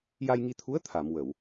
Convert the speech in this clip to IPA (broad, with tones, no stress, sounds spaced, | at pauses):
j a˧ j ŋ i˧ t̪ʰ u˧˥ ə̯ t̪ʰ a˨˩˨ m w ə˨˩˨ w